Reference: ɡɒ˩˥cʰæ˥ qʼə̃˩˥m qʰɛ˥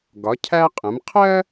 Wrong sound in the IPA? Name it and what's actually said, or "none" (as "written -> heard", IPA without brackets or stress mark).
ɛ˥ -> ɜ˥